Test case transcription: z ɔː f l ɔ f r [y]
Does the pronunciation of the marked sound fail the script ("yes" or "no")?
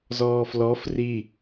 yes